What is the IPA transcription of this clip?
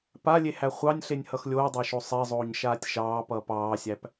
p a lʲ e h æ χʷ ɑ nʲ ɬ e nʲ h ʌ x lʲ oː dˤ ɑ ʃ o sˤ e zˤ oː ɲ ʃ aː tʲ ʃ ɑː p ʌː p ɑː sʲ æ p

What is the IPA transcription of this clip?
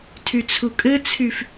tʰ y t͡sʰ u kʼ ɘ t͡sʰ y f

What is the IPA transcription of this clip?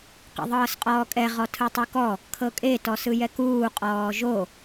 q ḭ ðˤ ɤː s qʼ ɔː kʼ ɛ ʁ ɔ tʰ ɯ tˤ ɯ k ɔ | kʰ ɤ kʼ e t ɔ s ɯ j ɛ k uː qʼ ɔː ʒ o

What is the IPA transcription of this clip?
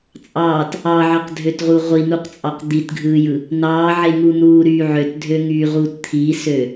t͡sʼ ɑː t | ɑ ʕ ɑ q dʱ ø t ʁ u ʁʷ i n̪ u q t͡sʼ ɑ q d̪ i t ɡʱ ɯː j ɯ | n̪ ɑː ʕ e ŋ u n̪ uː ɾ yː ʕ ø t dʱ ø ŋ yː ʁ uː t t̪ʰ i s ø

